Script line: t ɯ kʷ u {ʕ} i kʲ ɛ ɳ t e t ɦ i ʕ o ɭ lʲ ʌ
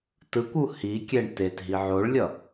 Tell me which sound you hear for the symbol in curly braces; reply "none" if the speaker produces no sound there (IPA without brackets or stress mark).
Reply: h